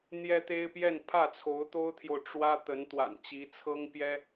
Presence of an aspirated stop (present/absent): present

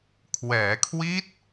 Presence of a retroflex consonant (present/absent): absent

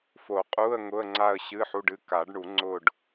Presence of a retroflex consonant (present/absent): present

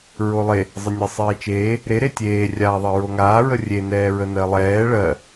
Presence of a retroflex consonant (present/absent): present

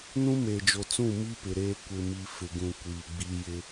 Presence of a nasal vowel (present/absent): present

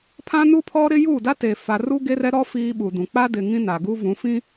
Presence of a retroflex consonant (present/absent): absent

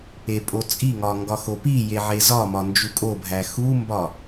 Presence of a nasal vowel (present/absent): absent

